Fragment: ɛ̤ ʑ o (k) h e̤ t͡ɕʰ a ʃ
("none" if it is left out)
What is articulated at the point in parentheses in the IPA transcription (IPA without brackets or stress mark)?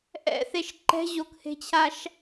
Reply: k